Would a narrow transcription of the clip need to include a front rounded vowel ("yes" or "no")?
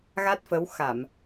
no